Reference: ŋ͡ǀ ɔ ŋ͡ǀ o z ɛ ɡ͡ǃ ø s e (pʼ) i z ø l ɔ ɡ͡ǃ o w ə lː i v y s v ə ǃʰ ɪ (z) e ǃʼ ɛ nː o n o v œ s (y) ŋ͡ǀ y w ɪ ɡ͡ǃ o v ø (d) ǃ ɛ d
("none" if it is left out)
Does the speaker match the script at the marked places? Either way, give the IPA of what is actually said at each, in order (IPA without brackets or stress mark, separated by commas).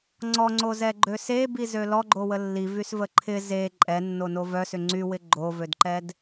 b, z, ʏ, d